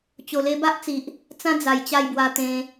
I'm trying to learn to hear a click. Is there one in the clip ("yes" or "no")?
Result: no